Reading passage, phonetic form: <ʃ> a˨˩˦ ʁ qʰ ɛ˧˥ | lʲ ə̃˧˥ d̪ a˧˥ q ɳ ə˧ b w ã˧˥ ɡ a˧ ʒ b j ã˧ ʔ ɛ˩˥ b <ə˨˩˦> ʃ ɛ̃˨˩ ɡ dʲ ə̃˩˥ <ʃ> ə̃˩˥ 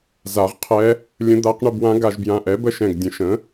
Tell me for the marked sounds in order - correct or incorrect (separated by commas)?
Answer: incorrect, incorrect, correct